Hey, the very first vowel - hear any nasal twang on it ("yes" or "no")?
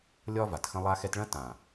no